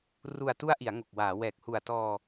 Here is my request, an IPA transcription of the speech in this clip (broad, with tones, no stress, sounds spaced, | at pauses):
r u˨˩ a̯ t u˦˥ a̯ ʔ i˩˦ a̯ ŋ o˨˩ k̚ w aː˩˦ w ɛː˨˩ k̚ h u˨˩ a̯ t ɔː˧